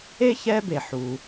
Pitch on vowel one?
high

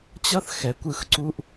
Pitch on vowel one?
high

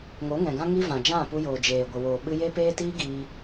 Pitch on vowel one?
rising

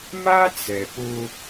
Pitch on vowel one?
high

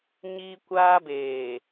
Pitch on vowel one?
high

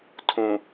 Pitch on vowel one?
low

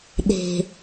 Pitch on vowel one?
low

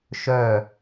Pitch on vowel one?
falling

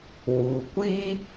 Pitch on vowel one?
low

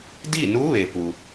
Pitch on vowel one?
falling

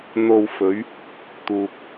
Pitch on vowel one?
low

